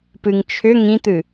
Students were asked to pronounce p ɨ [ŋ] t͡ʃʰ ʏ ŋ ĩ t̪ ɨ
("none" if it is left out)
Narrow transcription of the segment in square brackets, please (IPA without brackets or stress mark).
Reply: ŋ